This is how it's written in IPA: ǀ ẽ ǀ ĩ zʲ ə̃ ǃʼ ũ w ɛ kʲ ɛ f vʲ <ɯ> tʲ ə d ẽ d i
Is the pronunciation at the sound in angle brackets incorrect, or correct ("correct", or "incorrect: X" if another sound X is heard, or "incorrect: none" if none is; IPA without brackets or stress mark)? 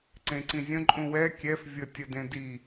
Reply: incorrect: ə